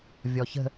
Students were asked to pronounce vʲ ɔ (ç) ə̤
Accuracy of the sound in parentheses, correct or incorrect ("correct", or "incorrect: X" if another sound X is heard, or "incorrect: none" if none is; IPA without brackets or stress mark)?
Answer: correct